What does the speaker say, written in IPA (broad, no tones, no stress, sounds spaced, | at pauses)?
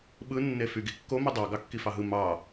ɓ ɯ nː e f y ɡ i kː o m ɯ dˤ ɑ ɡ ɑ kː i f ɑ ɦ ɯ m ɑ